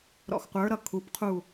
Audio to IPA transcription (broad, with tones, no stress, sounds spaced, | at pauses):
ɾ ɔ̰˧˩ x qʷ ə˞˨˥ ɾ ʌ˧ kʰ u˩˧ p qʰ u˧˩